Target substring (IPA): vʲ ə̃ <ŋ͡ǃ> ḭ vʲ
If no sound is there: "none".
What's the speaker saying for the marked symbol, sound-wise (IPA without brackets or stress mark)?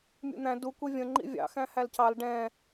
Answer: ŋ͡ǃ